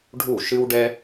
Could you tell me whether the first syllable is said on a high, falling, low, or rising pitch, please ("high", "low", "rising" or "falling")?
falling